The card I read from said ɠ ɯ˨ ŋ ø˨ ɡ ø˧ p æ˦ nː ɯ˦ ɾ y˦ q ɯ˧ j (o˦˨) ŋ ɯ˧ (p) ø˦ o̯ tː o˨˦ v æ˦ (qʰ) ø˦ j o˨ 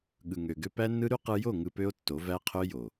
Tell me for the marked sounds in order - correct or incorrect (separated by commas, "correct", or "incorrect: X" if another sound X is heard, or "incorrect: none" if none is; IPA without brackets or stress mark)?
correct, correct, correct